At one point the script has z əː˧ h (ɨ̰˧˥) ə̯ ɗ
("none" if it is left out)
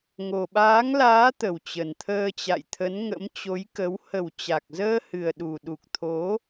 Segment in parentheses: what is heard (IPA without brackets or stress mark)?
ɨ˨˩